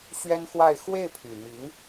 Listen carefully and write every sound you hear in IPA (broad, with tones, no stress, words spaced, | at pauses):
ɕɥɛ˥nxwa˥˧ɪ̯ xwe˥˩ɪ̯pʰy˨˩mi˧˥ŋ